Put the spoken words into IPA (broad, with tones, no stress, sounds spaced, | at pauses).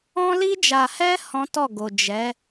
ɔ̃˧ l i˧ d͡ʒ a˨ h ɛ˧ h ɔ̃˦ t ɔ˦˨ ɡ o˨ d͡ʒ ɛ˨˦